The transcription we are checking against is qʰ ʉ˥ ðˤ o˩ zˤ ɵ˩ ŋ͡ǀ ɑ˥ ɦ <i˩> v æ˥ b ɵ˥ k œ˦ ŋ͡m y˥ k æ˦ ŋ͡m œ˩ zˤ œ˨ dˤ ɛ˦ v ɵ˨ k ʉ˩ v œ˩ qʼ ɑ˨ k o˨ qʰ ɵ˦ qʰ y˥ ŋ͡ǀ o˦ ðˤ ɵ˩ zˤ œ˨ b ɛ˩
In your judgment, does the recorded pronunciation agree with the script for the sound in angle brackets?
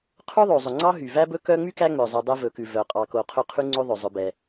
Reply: no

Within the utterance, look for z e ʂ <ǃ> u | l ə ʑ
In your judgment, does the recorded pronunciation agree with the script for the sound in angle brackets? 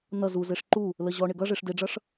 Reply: yes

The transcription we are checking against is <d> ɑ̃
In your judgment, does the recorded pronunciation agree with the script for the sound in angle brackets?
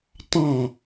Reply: no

